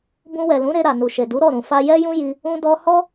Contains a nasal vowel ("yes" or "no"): yes